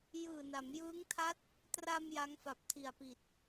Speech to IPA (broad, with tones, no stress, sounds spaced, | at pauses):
j ɯː˨˩ n a˩˦ m j ɯː˦˥ ŋ tʰ a˦˥ t̚ | t r a˧ m j a˦˥ ŋ f a˨˩ p̚ tʰ i˨˩ a̯ p i˨˩ t̚